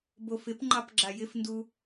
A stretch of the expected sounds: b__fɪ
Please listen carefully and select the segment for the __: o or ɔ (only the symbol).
o